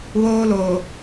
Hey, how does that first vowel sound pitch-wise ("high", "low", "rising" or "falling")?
high